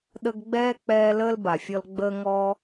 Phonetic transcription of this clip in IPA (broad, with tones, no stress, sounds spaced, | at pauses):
ɗ ə˦ ɡ ɡ͡b ɛː˥ k͡p ɛː˦ l əː˥ l b a˩ fʲ ɔ˦ l ɡ͡b əː˥ ŋ ɔ˥